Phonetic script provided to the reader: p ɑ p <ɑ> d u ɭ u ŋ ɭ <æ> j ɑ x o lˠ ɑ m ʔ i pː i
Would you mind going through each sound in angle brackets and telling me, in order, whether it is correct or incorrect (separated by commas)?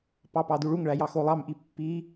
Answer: correct, correct